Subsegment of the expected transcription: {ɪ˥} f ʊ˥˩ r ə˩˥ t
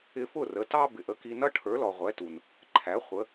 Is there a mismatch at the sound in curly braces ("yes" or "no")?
yes